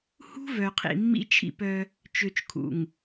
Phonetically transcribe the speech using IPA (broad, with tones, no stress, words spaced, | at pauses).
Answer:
hṳ˦ vœ˨qʰḭ˨mːḭ˦ t͡ʃʰḭ˦˨pœ˦ | t͡ʃø˨t͡ʃkʰṵ˨ŋ